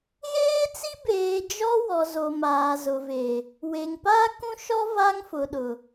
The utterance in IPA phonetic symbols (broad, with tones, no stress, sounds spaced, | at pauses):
ɣ eː˦ t͡s i˦ b eː˨ d͡ʒ ɔ˦ w ɔ˨ z o˨ m aː˨ z ʊ˨ v e˨ | w e˨ ŋ p aː˦ k ũ˦ ʃ ɔ˦ v a˦ ŋ f ʊ˨ ɗ ʊ˨